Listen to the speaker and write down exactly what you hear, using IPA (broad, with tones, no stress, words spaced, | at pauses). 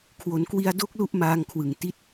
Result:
kʰwo˩˦nkwi˧a̯do˦˥k̚ lu˥˩ʔmaː˧ŋ kʰwɯ˨˩ŋti˦˥t̚